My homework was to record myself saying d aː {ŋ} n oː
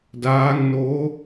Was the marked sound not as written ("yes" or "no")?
no